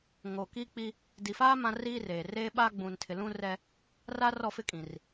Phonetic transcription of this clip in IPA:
ŋ oː˨ k iː˦ k͡p i˦ | d i˨ f aː˦ m ã˦ r iː˦ r eː˨ r eː˦ ɓ aː˦ ɡ͡b ũ˨ n tʰ ɪ˨ l ũ˦ r ɛ˦ | r aː˦ r ɔ˦˨ f ɪ˦ kʼ ĩ˨ r

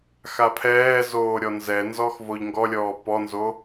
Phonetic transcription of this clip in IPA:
x a pʰ ɛː z oː ɾʲ ɔ n z ɛ n z ɔ x v o ʎ ŋ ɡ ɔ lʲ ɔː p ɔ n z o

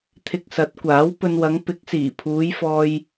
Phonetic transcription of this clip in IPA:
t̪ʰ ɪ˧ k̚ s ɐ˨˥ t̚ kʷ aː˨˥ w p ɵ˧ n w ɐ˨˧ ŋ p ɪ˨˥ k̚ s iː˨˩ pʰ uː˨˧ j f ɔː˧ j

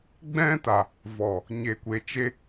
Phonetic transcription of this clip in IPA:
ɡ͡b ɛ̃˦ t a˨ | v ɔ˨ | ɲ e˨ kʷ e˨ t͡ʃ e˧

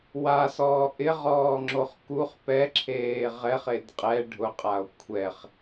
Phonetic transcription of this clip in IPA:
w a s ɔː ʔ ɪ ʁ ɔː ŋ͡ǁ o χ k u χ p ɛ ǁʰ eː ʁ ɛ χ e d qʼ ɛ ɖʱ ʊ qʼ a o̯ kʷʰ ɛ χ

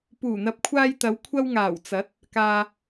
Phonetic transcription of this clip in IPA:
p uː˨˩ n̪ ɐ˨ p̚ kʷʰ aː˧ j t̪ ɐ˨˧ w kʷʰ ɐ˧ w ŋ aː˨˩ w t͡s ɐ˨˥ t̚ | k aː˧

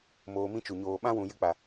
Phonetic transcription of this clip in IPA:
m oː˧ m ĩ˦ t͡ʃ u˨ ɲ oː˨ ɓ ã˦ w ũ˨ j ɨ˧ k͡p a˨

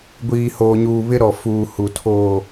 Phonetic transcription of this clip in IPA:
ɡʷ iː˨ h oː˨ ɲ uː˨ β ɪ˦ ɾ ɔ˨ f uː˨ h u˨ tʰ oː˨

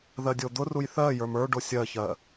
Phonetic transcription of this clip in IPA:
ð ɜ dʲ o d̪ ʊ r u j θ ɜ j ə˞ m ə˞ ɖ o sʲ ɜ ç ɜ

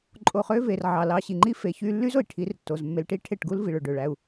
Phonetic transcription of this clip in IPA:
ǃʼ o˧ χ ø˦ v e˨ r ʕ ɑ˨ l ɑ˧ ɕ i˨ ŋ͡ǃ i˦ f e˨˦ ç y˧ lː y˦ z o˨ i̯ ʈʰ i˨˦ r tː o˨ z mː e˧ l ʈ i˦ ʈʰ e˦˨ ʈ ɡ u˦ l v i˨ ɭ ø˨ ɖ ø˨ ɭ æ˧ u̯

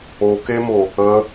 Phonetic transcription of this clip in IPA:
o k e m o | ə

